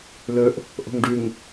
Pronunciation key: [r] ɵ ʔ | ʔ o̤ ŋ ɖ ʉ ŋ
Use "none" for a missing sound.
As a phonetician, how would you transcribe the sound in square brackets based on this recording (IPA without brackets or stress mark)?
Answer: l